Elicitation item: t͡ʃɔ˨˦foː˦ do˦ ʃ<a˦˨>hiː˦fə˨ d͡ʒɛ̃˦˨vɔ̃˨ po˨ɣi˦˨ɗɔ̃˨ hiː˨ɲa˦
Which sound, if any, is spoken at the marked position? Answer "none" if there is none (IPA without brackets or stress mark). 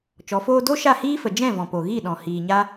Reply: a˦˨